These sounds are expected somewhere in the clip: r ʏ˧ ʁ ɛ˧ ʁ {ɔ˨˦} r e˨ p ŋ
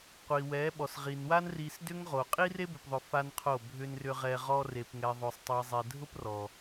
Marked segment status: incorrect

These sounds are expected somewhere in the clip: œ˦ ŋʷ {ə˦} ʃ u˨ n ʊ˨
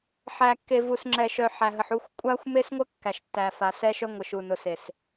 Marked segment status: incorrect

